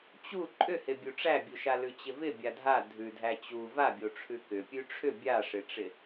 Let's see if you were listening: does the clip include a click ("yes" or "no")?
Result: yes